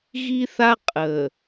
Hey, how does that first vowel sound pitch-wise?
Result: high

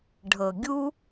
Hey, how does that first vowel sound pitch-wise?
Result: low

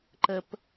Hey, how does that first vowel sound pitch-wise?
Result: low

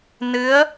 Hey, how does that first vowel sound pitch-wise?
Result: rising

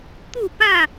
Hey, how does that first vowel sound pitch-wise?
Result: falling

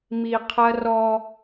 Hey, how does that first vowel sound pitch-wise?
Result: low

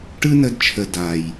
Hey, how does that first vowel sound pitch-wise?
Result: high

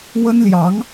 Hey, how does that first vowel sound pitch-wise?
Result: high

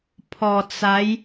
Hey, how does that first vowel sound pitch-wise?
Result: low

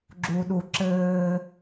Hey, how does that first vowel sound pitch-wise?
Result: high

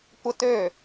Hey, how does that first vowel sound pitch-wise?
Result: high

